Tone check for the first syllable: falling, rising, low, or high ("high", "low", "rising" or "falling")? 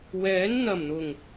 rising